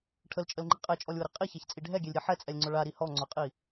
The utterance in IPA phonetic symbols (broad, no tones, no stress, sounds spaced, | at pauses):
ʈʰ ə l t͡ʃʼ ə l ŋ͡ǃ i qʼ ɛ t͡ʃʼ ɔ lʲ w ʊ ɾ i qʼ i ç a ç t͡sʼ i ɖʱ ɛ ɡʲ ɛ lʲ ɾʲ ɛ ħ ɛ t͡sʼ ɛ lʲ ŋ͡ǀ ʊ ɭ a ɾ i h ɔ ŋ͡ǀ ʊ qʼ i